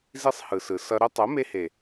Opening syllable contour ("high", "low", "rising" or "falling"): high